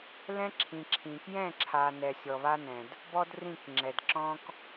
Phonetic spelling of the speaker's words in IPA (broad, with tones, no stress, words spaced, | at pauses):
lɛ̃˦ǁʰĩ˨ ǁʰĩ˨ kjɛ̃˦˨ǁʰa˨ nɛ˨sʲɔ˨βa˦nɛ̃˨d | bɔ˦drĩ˦˨kŋ͡ǁɛ˨dǁɔ̃˦k